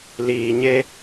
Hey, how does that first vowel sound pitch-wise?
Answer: low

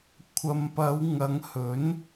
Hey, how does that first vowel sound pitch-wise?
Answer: low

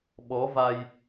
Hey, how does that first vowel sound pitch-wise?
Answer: rising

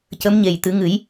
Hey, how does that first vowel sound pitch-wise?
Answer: rising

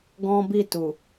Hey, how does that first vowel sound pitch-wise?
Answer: high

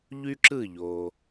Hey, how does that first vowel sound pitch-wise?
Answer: high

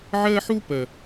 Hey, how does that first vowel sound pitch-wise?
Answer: high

